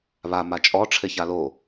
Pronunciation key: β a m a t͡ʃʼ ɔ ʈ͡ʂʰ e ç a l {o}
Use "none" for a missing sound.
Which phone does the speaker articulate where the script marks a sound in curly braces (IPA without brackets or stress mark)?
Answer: o